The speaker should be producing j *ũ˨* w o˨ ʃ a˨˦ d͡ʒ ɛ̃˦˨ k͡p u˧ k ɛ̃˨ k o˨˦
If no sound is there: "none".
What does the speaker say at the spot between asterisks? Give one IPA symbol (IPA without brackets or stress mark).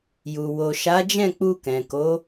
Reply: u˨